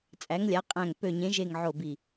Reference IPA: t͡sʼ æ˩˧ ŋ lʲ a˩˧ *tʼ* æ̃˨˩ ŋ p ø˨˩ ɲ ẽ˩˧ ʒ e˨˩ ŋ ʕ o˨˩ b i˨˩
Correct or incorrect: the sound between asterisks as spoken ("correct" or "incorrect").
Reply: incorrect